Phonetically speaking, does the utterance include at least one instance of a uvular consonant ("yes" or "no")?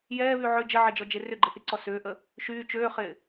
yes